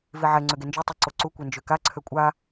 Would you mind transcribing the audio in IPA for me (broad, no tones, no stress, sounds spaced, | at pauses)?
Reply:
v i ʕ ɛ ŋ͡ǀ ø ɡ e n d͡ʒ ø tˤ ɛ ǀ o ǀ u kʷ ɛ n d͡ʒ ø k a ǀʰ ø kʷʼ a